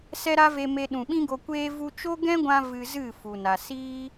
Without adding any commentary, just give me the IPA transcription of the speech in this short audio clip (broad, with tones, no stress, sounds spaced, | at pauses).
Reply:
s ɛ˦ ɾ a˦ v e˧ m e˧ ɗ ũ˨ ɓ ĩ˦ ɡ o˧ kʷ eː˦ v u˧ t͡ʃ o˦ ɡ ɛ̃˦ ɡʷ ã˧ v ɨ˧ z ɨ˦˨ f u˨ n a˨ s iː˦